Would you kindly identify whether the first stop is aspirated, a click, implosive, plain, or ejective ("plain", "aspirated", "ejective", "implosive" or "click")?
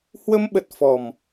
implosive